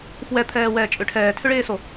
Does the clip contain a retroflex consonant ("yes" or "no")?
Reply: yes